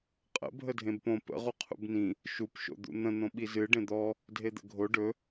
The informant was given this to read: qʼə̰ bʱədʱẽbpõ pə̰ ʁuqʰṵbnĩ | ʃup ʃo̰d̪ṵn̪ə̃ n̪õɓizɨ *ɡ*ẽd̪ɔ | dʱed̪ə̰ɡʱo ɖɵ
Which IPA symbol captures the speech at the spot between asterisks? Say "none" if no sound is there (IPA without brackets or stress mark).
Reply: ɖ